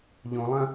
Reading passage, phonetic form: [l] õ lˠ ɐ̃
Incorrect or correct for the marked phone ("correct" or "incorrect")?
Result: incorrect